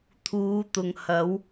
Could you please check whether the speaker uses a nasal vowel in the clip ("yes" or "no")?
no